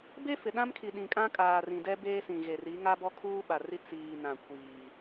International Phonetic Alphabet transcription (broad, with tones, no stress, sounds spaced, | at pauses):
b e˦ f ɪ˨ ɗ ã˦ m kʰ i˨ ɗ ĩ˨ kʼ ã˦ kʼ aː˨ r ĩ˨ d ɛ˦ b eː˦ s ĩ˨ ɣ e˨ r i˨˦ ŋ a˦ b ɔ˦ kʰ uː˦ ɓ a˨ r i˦ t͡s iː˨ n ã˨ kʷ iː˨